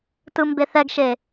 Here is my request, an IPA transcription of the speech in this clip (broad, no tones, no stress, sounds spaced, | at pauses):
t ɯ m b e θ ɛ ɡ ʃ e